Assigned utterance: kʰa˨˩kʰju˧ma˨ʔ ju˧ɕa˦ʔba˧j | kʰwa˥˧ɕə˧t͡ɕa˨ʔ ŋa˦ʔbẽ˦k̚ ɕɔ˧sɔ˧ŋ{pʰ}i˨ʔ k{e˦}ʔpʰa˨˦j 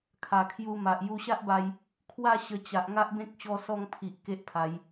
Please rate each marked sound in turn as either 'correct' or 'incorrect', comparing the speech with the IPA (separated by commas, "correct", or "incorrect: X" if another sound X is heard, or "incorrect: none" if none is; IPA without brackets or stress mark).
correct, correct